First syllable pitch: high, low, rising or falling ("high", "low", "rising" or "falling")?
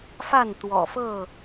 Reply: falling